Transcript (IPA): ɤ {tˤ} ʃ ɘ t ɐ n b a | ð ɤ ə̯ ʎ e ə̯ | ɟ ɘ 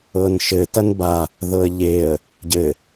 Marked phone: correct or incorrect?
incorrect